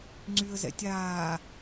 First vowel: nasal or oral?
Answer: oral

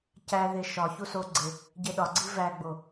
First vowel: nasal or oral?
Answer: oral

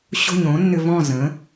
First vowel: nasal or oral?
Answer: oral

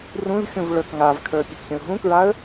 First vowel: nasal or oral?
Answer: nasal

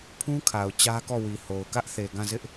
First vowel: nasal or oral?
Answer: nasal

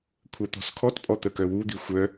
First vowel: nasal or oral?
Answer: oral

